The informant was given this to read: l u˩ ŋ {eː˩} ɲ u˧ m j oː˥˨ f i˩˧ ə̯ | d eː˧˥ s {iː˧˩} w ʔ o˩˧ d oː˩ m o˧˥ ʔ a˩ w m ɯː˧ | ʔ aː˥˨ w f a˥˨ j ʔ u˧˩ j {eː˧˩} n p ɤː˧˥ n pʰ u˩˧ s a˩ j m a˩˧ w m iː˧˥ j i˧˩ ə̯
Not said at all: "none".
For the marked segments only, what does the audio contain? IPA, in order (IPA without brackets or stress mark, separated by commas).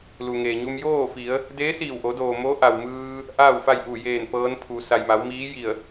eː˩, iː˧˩, eː˧˩